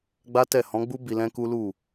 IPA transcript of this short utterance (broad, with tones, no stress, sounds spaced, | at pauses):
ɡ͡b a˦ t ɛ˦˨ h ɔ̃˨˦ ɡ͡b u˦ b i˧ l ɛ̃˦ k u˦ l u˦˨